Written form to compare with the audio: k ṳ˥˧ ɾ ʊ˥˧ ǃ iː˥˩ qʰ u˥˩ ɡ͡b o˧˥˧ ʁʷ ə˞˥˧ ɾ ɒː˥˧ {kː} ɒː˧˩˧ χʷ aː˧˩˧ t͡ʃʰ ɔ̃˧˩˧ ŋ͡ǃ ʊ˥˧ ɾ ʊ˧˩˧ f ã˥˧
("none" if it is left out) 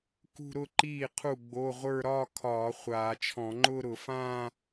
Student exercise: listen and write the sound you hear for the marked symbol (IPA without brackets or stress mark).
kʰ